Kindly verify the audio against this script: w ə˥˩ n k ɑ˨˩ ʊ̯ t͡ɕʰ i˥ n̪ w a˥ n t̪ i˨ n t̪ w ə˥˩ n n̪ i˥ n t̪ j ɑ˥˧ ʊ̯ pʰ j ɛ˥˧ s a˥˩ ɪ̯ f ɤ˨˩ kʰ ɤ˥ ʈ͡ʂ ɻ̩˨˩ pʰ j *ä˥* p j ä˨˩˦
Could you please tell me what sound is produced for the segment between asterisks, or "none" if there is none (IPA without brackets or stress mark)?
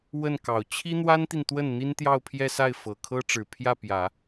ä˥˩